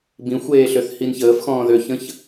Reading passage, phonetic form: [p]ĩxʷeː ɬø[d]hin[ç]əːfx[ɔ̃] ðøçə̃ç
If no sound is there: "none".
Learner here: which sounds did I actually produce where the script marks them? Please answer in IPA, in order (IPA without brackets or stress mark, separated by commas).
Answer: b, θ, ç, ɔ̃ː